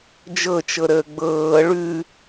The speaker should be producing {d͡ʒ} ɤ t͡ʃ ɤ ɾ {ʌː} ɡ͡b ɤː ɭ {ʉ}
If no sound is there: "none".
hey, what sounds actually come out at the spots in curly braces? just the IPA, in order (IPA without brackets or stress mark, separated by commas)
d͡ʒ, əː, ʉ